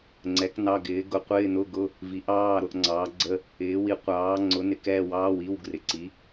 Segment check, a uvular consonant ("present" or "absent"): present